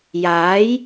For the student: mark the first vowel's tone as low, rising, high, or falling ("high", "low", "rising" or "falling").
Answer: rising